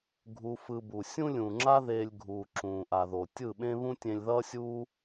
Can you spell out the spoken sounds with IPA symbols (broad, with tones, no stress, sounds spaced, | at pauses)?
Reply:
ɡʱ u˧ f ɯ˧ b u˨ sʲ ũ˦ lʲ ũ˨ ŋ͡ǁ a˦ ð eː˧ lʲ ɡʱ uː˨ ǁ ũː˨ ʔ a˨ ð o˨ tʲ ɯ˦˨ ɓ ẽ˦ β ũ˦ tʲ ẽ˧ lʲ ð ʌː˦ sʲ uː˦